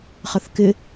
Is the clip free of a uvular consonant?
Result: no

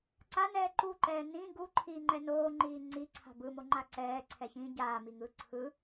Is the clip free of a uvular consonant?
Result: yes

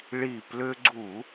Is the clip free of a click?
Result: no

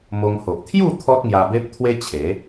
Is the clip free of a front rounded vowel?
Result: yes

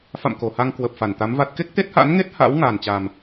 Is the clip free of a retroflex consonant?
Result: yes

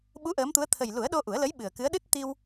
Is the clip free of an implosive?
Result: no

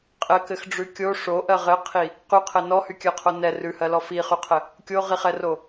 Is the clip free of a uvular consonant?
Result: no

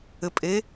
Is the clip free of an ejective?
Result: no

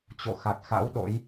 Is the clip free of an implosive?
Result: no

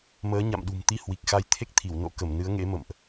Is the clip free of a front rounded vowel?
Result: yes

